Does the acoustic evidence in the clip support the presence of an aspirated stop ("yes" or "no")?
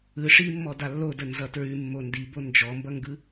no